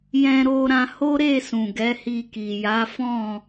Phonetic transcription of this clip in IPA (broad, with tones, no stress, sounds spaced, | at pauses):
j ɛ̃˧ ɾ o˧ ɾ ã˧ h o˦ ɾ e˦˨ s ũ˨ ɡ ɛ˨˦ h i˧ k i˨ j a˨˦ f ɔ̃˦˨